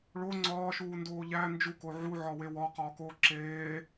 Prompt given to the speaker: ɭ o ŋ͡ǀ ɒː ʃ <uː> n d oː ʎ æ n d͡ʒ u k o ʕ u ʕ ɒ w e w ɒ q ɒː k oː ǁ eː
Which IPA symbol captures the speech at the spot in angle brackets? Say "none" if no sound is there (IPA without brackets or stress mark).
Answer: uː